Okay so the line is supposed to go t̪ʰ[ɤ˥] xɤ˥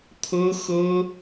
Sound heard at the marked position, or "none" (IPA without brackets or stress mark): ɤ˥